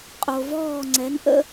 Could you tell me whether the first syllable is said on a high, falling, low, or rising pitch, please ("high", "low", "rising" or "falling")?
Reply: low